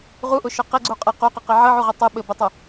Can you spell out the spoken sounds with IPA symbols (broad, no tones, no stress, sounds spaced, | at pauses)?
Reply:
ʁ u ʔ ʊ ʃ ʊ q e ɡ͡ǀ u qʼ e q u q ɘ q e ʕ ɘ ʕ u ʁ ə tˤ ɘ ɓ ɘ b ə tˤ ʊ